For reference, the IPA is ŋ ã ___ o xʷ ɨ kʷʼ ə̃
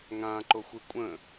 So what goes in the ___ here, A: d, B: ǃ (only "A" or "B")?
B